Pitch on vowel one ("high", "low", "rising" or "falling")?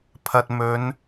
low